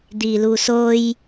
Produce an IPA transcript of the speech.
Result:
d̪ i l u s o j

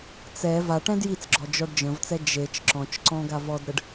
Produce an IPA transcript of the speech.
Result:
t͡s ɛ v a ʈ ɛ̃ d j i t͡s ɡ͡ǁ ɔ d͡ʒ ɔ ɖ d͡ʒ ə̃ v t͡s ɛ d͡ʒ e t͡ʃ ǁ ɔ̃ t͡ʃ ǀ ɔ̃ ɡ a v ɔ d ɾ ə ɖ

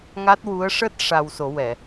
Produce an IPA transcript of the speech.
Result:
ŋ a˦˥ t̚ w u˧˥ ə̯ ʂ əː˦˥ t̚ ʂ a˧ w s o˨˩˦ w ɛ˨˩˨

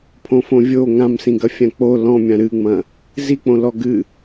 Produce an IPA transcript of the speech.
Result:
pʰ õ f õ vʲ o ŋ ã m s ĩ ɡ ɐ fʲ ã k͡p o l ɔ̃ mʲ ã ɾ ɨ ŋ͡m ɐ̃ | z i k͡p õ l ɔ ɡ ɨ

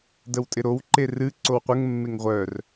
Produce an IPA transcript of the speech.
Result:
d ə w tʼ ɪ ɾ o w ǃ e r ɨ ǀ o w qʷ ə ŋ mː e ŋ ʁʷ œ r

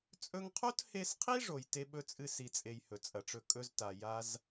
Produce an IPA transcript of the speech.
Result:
t͡sʼ ɵ˧ ŋ qʰ o˦ t h e˧ s qʰ i˦ ʐ o˨ j t e˧ ɓ ɵ˧ t͡sʼ ɨ˧ s i˨ t͡sʼ e˨ j h ɵ˨ t͡sʼ ɐ˨ ʈ͡ʂ ɵ˧ kʼ ɵ˧ z t a˨ j a˦ z

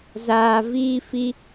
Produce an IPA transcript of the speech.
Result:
z aː˧ v iː˦ f i˦

